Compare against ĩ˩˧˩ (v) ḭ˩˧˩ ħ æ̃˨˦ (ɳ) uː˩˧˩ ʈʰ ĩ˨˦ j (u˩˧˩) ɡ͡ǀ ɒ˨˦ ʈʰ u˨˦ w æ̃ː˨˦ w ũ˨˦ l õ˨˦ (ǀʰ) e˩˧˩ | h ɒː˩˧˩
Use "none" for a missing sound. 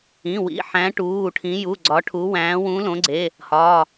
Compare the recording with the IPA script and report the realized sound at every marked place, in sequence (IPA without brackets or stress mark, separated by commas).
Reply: w, ʈ, u˩˧˩, ɡ͡ǀ